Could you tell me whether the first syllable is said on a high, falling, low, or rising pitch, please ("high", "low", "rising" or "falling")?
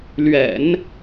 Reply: low